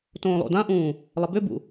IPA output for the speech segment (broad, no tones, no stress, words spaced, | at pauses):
tõːlˠo̰dãʔũː | lˠəbʏbṵ